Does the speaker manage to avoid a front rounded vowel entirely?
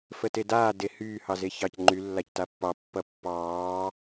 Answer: no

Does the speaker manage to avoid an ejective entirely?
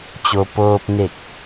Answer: yes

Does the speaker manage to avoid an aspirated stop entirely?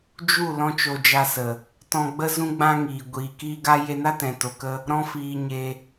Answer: yes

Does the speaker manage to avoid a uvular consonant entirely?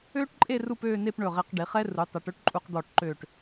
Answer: no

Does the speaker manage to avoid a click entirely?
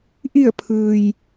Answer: yes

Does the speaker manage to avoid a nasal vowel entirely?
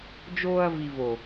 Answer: yes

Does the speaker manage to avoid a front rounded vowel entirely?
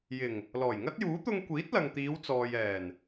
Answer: yes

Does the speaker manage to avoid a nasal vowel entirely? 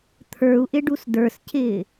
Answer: yes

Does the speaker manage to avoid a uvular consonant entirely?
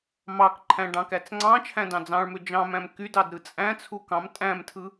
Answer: yes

